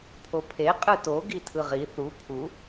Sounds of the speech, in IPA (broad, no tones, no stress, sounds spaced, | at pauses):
pʰ o pʰ e qʼ ɯ t o ɡ i tʰ ɯ ʁ i θ u pʰ u